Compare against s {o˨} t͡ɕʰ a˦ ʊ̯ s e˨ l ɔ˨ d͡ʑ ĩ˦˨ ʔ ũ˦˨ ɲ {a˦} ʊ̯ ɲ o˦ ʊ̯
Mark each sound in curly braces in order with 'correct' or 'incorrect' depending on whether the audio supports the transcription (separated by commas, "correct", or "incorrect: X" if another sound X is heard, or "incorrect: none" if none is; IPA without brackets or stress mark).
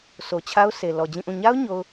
correct, correct